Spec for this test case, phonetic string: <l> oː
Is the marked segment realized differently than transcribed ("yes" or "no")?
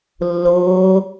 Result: yes